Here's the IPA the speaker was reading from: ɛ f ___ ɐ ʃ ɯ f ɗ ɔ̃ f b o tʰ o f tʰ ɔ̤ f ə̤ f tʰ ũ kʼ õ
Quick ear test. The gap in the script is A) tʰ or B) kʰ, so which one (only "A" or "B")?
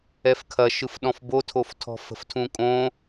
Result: B